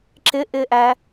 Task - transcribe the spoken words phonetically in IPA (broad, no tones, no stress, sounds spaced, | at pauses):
ǁ ɪ ʔ ɪː ʔ æ